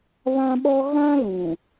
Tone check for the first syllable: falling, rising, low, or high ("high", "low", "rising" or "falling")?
high